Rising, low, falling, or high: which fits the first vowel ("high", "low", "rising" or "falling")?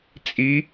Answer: rising